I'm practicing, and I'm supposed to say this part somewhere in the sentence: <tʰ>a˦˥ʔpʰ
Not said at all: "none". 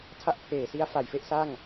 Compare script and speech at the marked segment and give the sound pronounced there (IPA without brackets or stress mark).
tʰ